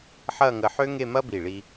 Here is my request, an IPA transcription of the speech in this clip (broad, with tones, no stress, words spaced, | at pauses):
ħɐ˥˧ŋə˧ħø˥ŋe˥˧ mɐ˥bi˧˩ɭi˧